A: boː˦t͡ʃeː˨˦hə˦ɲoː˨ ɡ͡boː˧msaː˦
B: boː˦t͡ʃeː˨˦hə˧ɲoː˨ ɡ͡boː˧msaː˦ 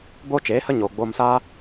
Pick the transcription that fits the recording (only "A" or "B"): A